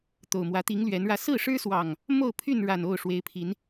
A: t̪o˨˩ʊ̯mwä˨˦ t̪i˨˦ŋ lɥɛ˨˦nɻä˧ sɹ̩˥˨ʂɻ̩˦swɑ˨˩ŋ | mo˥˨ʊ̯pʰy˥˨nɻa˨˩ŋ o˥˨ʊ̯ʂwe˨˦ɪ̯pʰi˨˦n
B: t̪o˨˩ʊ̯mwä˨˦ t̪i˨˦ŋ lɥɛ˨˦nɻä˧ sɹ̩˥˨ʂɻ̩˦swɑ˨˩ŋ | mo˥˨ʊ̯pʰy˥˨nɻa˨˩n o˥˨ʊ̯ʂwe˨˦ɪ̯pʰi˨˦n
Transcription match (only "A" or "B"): B